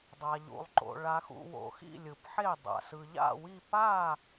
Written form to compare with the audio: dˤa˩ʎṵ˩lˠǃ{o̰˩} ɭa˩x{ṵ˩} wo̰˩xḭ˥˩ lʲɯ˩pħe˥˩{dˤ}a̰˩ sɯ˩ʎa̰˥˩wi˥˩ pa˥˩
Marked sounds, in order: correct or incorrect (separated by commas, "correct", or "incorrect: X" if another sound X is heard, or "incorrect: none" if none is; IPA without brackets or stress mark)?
correct, correct, correct